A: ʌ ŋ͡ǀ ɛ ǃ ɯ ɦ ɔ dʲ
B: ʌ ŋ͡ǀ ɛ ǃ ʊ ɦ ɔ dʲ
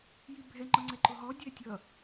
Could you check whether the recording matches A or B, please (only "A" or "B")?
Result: B